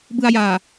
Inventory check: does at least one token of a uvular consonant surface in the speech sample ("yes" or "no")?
no